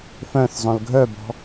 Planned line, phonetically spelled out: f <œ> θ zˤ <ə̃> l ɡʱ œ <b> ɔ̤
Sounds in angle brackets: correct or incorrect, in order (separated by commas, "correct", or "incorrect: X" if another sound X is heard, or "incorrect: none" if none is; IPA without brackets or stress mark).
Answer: incorrect: œ̃, incorrect: œ̃, correct